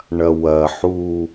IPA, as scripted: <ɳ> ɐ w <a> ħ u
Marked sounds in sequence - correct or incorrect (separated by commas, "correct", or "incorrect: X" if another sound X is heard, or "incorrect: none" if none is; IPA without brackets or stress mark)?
correct, incorrect: ɐ